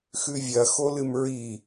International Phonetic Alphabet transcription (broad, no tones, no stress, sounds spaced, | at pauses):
x ʉ vʲ ɐ x o l ɨ m ɹ i